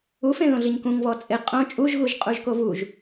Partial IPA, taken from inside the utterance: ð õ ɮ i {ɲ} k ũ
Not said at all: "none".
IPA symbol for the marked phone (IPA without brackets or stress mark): ɲ